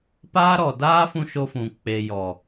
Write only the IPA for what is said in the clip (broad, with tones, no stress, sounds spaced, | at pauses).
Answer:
p aː˦ ɾ ɔ˨ d aː˦ f ũ˧ ʃ o˧ f ũ˨ k͡p e˨ j ɔ˨